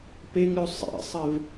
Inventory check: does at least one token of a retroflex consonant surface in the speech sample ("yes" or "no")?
no